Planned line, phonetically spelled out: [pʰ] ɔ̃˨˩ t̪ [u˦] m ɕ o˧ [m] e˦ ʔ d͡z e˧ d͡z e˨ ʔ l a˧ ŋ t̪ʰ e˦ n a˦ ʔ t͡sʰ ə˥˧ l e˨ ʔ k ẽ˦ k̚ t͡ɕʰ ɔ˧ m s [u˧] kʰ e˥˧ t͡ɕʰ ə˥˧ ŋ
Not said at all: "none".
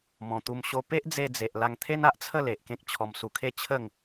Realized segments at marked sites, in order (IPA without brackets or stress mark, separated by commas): m, u˧, p, u˧